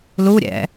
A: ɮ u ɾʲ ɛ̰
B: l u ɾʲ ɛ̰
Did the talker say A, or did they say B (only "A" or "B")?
B